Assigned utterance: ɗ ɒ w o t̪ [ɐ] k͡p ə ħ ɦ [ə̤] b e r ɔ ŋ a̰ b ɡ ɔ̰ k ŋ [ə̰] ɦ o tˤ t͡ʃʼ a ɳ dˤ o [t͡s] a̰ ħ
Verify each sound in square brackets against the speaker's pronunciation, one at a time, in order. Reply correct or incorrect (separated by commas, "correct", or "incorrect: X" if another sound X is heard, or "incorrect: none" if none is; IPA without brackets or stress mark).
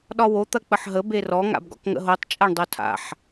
correct, incorrect: ə, correct, incorrect: tʰ